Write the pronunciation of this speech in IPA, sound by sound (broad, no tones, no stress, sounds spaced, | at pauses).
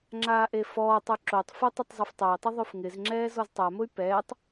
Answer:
ŋ͡ǁ aː ʔ e f ɔː tˤ u ǁ o tˤ f ʊ tˤ i tˤ zˤ e f tˤ a i̯ tˤ ʊ ðˤ o f ŋ ɪ z ŋ͡ǁ ɛː z ɔ z tˤ a m ʊ y̯ p ɛː tˤ